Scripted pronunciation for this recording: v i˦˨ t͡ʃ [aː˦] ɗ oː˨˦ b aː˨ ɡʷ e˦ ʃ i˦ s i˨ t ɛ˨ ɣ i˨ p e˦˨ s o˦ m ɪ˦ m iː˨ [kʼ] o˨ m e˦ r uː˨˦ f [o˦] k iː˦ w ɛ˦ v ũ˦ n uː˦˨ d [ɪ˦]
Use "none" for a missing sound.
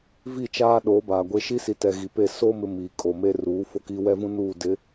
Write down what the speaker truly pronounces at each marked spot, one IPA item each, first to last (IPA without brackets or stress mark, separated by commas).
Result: aː˦, kʼ, o˦, ɪ˨˦